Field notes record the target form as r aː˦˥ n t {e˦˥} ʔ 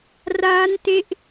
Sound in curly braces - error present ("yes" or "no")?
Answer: no